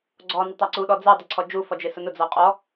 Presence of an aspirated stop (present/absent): present